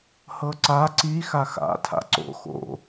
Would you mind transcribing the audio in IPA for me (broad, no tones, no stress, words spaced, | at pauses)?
hɤǀa ǀi xaxa̰ tʰa̰ǀo̰ xo̰